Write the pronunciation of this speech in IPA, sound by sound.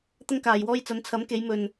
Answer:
t̪ɐ˥ŋkaː˨jwɔː˥j t͡sɐ˨˧nt͡sʰɐ˨˥mke˨˧j mɵ˨n

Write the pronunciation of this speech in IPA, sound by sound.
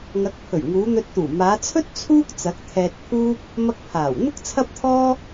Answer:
ŋɐ˨˥k̚pʰɵ˨˩ɥŋuː˨˧ n̪ɵ˧t̚t̪uː˨˩ maː˨˧t͡sʰɵ˥t̚ t͡sʰuː˥k̚t͡sɐ˨˥k̚ t̪ʰɛː˧t̚pʰuː˥p̚ | mɐ˥k̚pʰaː˨˩w n̪ʊ˥k̚t͡sʰɐ˥p̚t̪ʰɔː˥

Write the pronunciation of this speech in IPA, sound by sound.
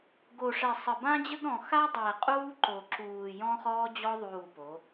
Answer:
ɡo˨ʂɛ˨sˤə˨bã˦ d͡ʑə˦ɡɾɔ̃˨ xa˦dˤɛː˨qʼuː˦ǃo˨ ǁuː˨ jɔ̃˦χɔː˦d͡ʑɔ˦ ðˤuː˦˨po˨˦

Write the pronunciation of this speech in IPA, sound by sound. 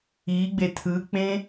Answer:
iɡ͡be tʰɯk͡pẽ

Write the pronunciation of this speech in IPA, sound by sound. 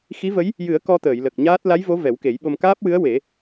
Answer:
xi˧˥və˧˥j | jɨ˨˩˦ə̯ kɔ˧t̪əː˨˩˨jlə˨˩k̚ ɲaː˦˥t̚ la˧˥jvo˧˥ vɛ˨˩˦wke˨˩˦jɓo˧m kaː˦˥p̚wɨ˧˥ə̯ we˨˩˦

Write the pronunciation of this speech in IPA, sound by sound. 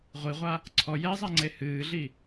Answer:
ʁʷiʁʷa | ǀʰɔ jɛzˤa ŋ͡ǀehɨːɮi

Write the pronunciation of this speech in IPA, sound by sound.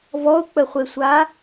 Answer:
vɔʊ̯k͡pəχʷesʷa

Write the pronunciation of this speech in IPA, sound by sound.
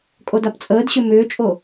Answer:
kʼodapt͡sʼəːdɕʏ mʏːt͡ʃʼo

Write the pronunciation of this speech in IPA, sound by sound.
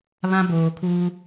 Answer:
βã˦boː˨kʰu˦

